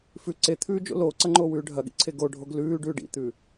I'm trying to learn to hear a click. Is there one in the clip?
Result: yes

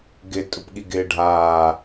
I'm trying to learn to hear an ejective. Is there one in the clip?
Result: yes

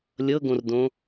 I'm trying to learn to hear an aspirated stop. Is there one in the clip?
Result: no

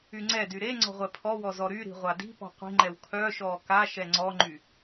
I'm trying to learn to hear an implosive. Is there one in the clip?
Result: no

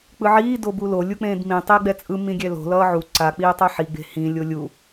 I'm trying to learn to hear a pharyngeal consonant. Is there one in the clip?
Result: yes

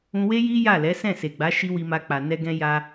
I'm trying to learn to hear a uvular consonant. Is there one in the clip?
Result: no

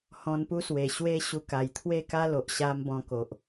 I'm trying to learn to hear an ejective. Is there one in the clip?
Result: no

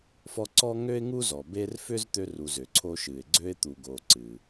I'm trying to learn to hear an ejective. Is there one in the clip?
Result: no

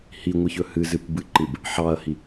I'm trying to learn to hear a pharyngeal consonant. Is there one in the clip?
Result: yes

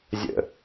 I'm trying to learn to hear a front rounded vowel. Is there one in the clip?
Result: no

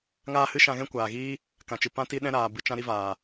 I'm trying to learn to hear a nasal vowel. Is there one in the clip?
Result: yes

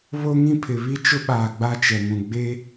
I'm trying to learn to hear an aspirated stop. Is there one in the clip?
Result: yes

